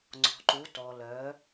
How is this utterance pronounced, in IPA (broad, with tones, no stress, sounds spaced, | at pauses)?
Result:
ŋ͡ǀ ɔ̤˩ ǃ u˩˧ t ɔ˩ l œ˩˧